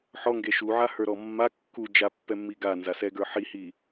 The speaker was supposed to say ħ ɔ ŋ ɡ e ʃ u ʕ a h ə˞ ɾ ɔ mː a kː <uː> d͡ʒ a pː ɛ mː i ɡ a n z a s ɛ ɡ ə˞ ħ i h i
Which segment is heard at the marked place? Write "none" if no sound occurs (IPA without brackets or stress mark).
u